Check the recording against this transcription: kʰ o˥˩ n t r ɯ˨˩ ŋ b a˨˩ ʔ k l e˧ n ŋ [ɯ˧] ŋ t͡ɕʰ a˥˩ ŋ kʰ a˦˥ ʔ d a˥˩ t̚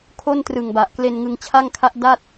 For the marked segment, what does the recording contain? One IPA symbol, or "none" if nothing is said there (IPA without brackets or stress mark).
ɯ˧